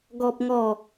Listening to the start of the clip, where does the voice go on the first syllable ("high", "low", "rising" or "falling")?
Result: high